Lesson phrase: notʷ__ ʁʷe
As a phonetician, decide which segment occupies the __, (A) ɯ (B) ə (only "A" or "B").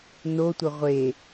B